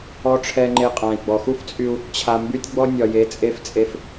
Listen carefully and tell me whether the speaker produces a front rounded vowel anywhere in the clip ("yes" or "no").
yes